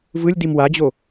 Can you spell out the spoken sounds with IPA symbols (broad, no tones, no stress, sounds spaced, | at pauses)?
v ɯ lʲ d i m w a d͡ʑ o